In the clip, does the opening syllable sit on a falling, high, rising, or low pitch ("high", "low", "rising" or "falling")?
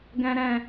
high